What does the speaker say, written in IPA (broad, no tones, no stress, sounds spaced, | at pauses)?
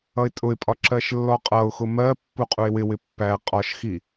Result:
ʌ ɪ̯ tʼ ʊ ɪ̯ pʼ ɒ ǁ ɜ ʃ lː ɔ qʼ ʌ ʊ̯ x ʊ m ɜ pː u qʼ u ɪ̯ w ɪ w ɪ pː æ qʼ ɒ ʃ x i